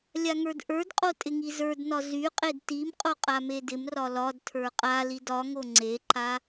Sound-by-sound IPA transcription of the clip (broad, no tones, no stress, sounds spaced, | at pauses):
lʲ a ŋ ə˞ d ʔ ə˞ d qʼ o tʼ ɪ ŋ i z ə˞ d n ɒ z y qʼ e d t i m qʼ o qʼ a m e d ɪ m r ɒ l ɒ d tʰ ə˞ qʼ a l i d ɒ ŋ o ŋ͡ǀ e ǃ a